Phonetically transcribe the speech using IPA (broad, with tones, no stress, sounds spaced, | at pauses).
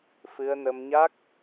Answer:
f ɨ˧ ə̯ n ə˧ m ɲ a˦˥ k̚